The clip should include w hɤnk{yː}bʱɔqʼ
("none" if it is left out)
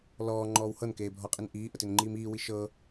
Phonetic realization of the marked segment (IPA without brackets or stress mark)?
eː